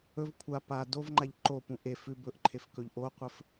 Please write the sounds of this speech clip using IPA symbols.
ɵv kʷʰa pa dovŋ͡ǃaʎ ǃopũ ʔe fʉ bɵʔǃʰefkɵʎ ʔoqʷɘf

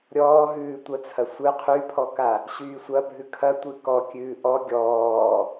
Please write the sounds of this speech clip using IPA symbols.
ɾʲɔːɦʉːtʷɐt͡sʰɐ sʷɨ qʰypʰɔka | ɕyːsʷɐbʱʉ kʰɐtʷɨ kɔ kʲʉːʔɔ ɡʲɔː

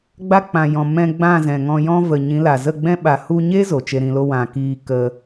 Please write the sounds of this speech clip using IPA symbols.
ɡ͡ba˧k͡pã˨jɔ̃˨ mɛ̃˧ ɡ͡bã˦˨zɛ̃˨ŋɔ̃˧jɔ̃˦ və˨ ɲĩ˨˦la˨zə˦˨ɡ͡bɛ̃˦ ɓa˨hu˧ɲe˦ zo˨t͡ʃe˧ɾĩ˧lo˦ wã˨kiː˧ kə˧

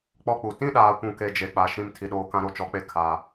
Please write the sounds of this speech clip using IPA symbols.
k͡pɔ˦k͡pu˨ tĩ˦ɗaː˨kʷũ˨ke˨ d͡ʒe˨k͡pa˨ ʃĩ˦mtʰi˨ɗoː˦ kã˦ɾo˦t͡ʃɔ˨˦k͡pe˦ kʰa˨

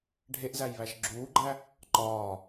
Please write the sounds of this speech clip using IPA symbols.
ɖʱeʔzæjβæʃ ɡ͡ǁuːɡ͡ǃæ | ǃɒː

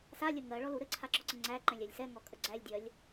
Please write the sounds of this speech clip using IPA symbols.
salʲə ŋɜɭɔlu ɾɘǀʰaǁɔǀə ŋ͡ǀæǃɛ̃lʲælʲ sɛŋɔkʼə ɡ͡ǀælʲdʲɜlʲ

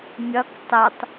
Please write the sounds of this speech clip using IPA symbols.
mʲʌk tˤɪtˤ

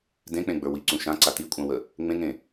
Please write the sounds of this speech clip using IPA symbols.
dẽk͡pẽɡ͡bə˞ wiǀũ ʃãǀa tikʷʼãwə | ŋ͡mẽŋẽ

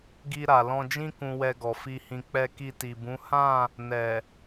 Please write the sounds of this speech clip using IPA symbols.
ɡi˧ ɾa˨lɔ̃˧d͡ʒĩ˦ kũ˧wɛ˧ɡɔ˨ fi˧hĩ˧ k͡pɛ˧ki˧ti˨bũ˨˦ hã˦˨ | nɛ˨

